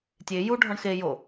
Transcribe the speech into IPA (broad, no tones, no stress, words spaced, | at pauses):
tʲe ju ɖʱɒɳxe jo